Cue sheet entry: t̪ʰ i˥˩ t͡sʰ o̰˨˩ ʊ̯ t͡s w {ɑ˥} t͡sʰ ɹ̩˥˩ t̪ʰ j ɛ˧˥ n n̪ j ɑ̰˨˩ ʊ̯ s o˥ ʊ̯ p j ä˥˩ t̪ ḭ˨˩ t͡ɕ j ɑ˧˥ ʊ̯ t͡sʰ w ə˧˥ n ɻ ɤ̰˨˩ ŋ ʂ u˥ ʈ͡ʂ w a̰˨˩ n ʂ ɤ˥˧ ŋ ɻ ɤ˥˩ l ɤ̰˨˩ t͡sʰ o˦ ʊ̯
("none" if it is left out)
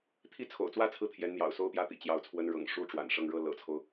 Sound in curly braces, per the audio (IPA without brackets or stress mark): ä˥